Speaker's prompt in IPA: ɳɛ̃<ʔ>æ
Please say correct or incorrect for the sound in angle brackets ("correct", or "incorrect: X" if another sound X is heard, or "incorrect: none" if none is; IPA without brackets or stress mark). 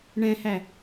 incorrect: h